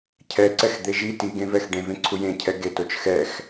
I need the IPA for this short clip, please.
cʰ ɛ ǀ ɛ x d̪ e ʒ i t i ɡ ẽ v ɛ x ɖ ẽ v ẽ ǀʰ u j ẽ cʰ ɛ ɡ e t o t͡ʃ x ɛ x

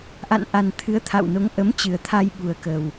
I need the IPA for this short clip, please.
ʔ a̰˧˨ n ʔ a˨˩ n t̪ʰ ɨ˨˦ ə̯ t̪ʰ a̰˧˨ w n o˨˦ ŋ ʔ ə˨˦ m t͡ɕ ɨ˨˩ ə̯ t̪ʰ a˧ j ɓ u˨˩ ə̯ k ə˨˩ w

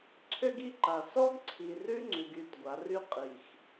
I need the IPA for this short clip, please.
ǀʰ ø˦ ɡ i˦ ǃ a˨ s ɔ˦ ɡ ǀʰ i˨ r ʉ˦ ŋ͡ǀ ʉ˨ ɡ y˦˨ t ɡʷ a˨˦ r y˦ qʼ i˨ x

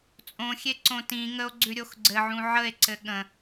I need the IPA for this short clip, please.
t͡sʼ õ xʲ e ǀ õ t ĩ ŋ ə o̯ ɡ͡ǀ ʉ ɾʲ o x ɡ͡ǀ ɘ ʕ ũ ʕ ə e̯ ǀ ɘ ɠ ə̃

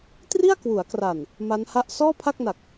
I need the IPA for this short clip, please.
t r i˥˩ a̯ k w u˩˦ a̯ k r a˨˩ n | m a˦˥ n h a˥˩ ʔ s ɔː˥˩ pʰ a˥˩ k̚ n a˨˩ k̚

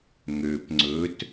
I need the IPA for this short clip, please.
ŋ ø p ŋ͡ǀ ɵ t

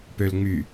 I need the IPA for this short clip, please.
p ø l ŋ͡m y

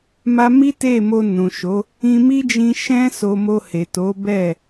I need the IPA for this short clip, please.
m a˦ m i˦ t e˦˨ m o˧ n ũ˨ ʃ o˨˦ | ĩ˧ m i˦ d͡ʒ ĩ˧ ʃ ɛ̃˦ s o˧ m o˧ h e˨ t o˨˦ b ɛ˦˨

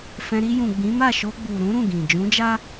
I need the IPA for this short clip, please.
f ɛ̃˧ ɾ i˧ j ũ˨ ɡ͡b ĩ˨˦ m a˦˨ ʃ o˧ ɡ͡b u˨ ɾ ũ˨˦ ɾ ũ˦˨ ɡ ĩ˨ d͡ʒ ũ˨˦ d͡ʒ a˦

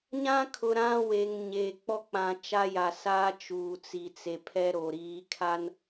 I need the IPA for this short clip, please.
ɲ ã˦ kʰ ʊ˨ ɾ ã˦ w e˨ ŋ ɲ eː˨ k͡p ɔ˦ k͡p ã˨ t͡ʃ a˦ j a˨ s aː˦ t͡ʃ uː˨ t͡s i˨ t͡s e˨ pʰ ɛ˦ ɾ o˨ ɾ iː˨˦ kʰ a˦ n

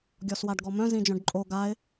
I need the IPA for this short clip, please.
ɡʲ ɔ s w a ɖ ɡ ɔ m œ̃ z ĩ d͡ʒ œ̃ ɖ ǃʼ o ɡ a ɪ̯

